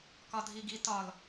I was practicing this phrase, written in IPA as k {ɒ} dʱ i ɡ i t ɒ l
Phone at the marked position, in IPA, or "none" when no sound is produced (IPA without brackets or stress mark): ɒ